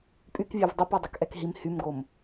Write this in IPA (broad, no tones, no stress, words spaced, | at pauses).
pʼykvʲøv dˤopɛ dˤɛkʔɛkɦim hymɡom